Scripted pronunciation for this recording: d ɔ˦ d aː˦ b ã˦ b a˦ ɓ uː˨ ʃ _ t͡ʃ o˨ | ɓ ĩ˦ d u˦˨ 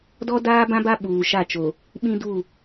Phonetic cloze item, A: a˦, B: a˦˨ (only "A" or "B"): B